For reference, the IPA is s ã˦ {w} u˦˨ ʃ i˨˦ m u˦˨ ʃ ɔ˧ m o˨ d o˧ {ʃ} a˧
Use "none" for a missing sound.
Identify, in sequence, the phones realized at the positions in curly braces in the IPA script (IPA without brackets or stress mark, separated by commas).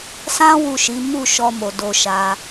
w, ʃ